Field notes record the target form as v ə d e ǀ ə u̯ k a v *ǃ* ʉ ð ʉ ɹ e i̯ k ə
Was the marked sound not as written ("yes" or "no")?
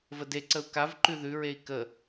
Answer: no